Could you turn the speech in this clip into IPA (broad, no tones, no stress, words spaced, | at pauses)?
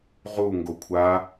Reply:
ʁu ŋɡokʷʰa